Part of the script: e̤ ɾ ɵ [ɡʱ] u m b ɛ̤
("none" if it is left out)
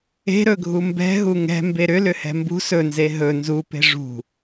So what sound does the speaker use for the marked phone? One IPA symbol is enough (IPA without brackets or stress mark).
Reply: ɡʱ